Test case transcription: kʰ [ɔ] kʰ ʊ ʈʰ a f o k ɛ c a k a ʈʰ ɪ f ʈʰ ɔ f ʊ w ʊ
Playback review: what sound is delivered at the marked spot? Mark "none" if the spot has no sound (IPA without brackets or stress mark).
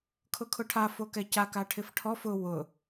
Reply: ʊ